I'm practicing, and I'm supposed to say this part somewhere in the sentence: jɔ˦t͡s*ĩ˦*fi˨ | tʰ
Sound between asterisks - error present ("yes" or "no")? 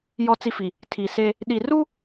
yes